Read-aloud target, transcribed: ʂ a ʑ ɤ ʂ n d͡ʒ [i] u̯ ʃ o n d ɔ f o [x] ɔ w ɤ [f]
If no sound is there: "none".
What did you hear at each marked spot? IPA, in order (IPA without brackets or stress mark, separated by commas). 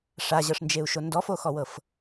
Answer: e, x, f